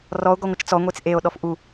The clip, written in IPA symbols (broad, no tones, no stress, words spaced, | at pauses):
rɔo̯ ɡɔŋʷɨt͡ʃt͡sɔ ŋʷet͡sʔeo̯ ɗɔfʔu